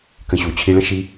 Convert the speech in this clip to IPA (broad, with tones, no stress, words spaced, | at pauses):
kə̃˧ɕu˨ t͡ɕʰi˧ɭə̃˦ ʃi˧